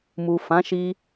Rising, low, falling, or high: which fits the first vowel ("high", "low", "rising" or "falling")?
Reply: low